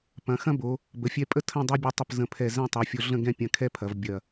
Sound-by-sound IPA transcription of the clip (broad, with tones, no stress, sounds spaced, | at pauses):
p ɐ̃˩˧ x ɐ̃˥ b o˩˧ | b ə˩˧ fʲ ɛ˧ pʼ ə˥˧ tʰ ə̃˥˧ dˤ u˧ bʲ o˧ tˤ ə˧˩ p z ə̃˧˩ pʰ ɛ˧˩ z ɛ̃˥˧ tˤ u˩˧ fʲ o˧ ɮ ə̃˥˧ ɡ ɛ̃˥˧ pʲ ɐ̃˧ kʰ ɛ˥ pʰ ɐ˩˧ v bʲ ɐ˧˩